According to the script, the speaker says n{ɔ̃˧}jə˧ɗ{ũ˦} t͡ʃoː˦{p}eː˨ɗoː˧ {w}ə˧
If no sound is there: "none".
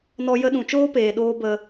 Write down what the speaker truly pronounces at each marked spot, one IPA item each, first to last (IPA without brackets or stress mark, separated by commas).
ɔ˧, ũ˨, p, b